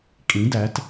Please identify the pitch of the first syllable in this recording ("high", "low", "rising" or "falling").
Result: rising